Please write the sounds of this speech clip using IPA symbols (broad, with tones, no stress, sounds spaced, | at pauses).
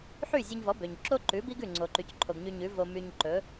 ħ y˥˩ zʲ ø˧ ɲ v ɔ˩˥ b ø˩ ɲ ǁ o˥ ǃ ʉ˩˥ b i˥ ɡ ʉ˥˩ ŋ͡ǀ o˩ ǃ y˩ c ǃʰ o˩ ɡ ɲ y˧ ɲ ʉ˩˥ v o˧ m y˧ ɲ ǃ ɵ˩˥